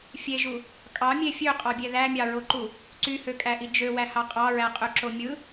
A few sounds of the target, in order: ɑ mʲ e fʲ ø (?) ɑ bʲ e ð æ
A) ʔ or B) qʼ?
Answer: B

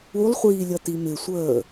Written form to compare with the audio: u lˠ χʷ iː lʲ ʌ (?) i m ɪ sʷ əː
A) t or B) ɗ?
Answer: A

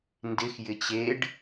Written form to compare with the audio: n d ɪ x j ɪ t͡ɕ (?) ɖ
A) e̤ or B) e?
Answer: B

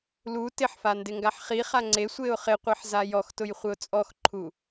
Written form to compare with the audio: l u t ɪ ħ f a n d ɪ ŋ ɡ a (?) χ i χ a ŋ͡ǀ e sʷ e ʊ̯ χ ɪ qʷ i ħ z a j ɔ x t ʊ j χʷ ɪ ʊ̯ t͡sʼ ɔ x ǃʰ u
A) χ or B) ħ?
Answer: B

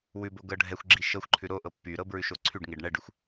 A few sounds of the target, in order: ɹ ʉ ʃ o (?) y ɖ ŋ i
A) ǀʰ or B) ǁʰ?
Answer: A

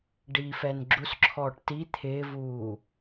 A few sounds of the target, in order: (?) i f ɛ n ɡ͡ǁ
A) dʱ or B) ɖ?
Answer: B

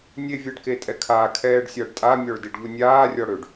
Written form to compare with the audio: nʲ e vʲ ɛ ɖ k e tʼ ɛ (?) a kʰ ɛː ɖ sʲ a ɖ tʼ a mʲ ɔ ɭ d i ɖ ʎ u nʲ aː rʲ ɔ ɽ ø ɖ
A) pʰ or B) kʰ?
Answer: B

